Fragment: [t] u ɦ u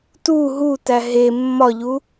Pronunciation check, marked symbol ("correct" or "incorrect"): correct